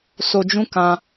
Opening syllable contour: low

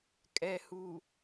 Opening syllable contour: low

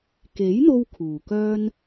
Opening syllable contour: rising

